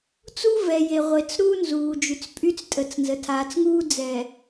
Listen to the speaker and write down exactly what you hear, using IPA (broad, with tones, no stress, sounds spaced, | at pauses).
t͡s u˦ v ɛ˨ j e˨ ʁʷ e˨ t͡s ɾ uː˦ n z uː˨ d͡ʒ y˨ t͡s pʼ y˦ t͡s tʼ ə˨˦ t͡s n z ə˨ tʰ aː˨ t͡s ŋ uː˦ d͡z ɛ˨